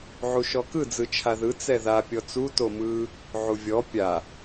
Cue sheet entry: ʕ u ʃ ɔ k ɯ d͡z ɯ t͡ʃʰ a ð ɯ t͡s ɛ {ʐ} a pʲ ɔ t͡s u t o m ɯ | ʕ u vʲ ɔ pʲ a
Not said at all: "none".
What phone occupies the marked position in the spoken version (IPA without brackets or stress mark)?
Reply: ð